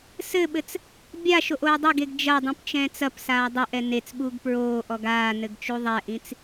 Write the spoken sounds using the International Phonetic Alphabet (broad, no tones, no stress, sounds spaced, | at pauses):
s ɘ ɓ ɘ t͡s | bʲ a ʃ o ʔ oː dˤ ɘ ɡ e ɡ d͡ʒ ɐ dˤ ĩ p t͡ʃ ɛ̃ː t͡s ɐ p s aː dˤ o ʔ ɛ n e t͡s ɓ uː ɡ p ɹ oː ʔ ɔ ɡ aː n ɘ ɡ t͡ʃ u ðˤ ɛ ʔ ĩ t͡s